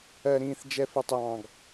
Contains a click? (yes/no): no